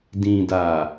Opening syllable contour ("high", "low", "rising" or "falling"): low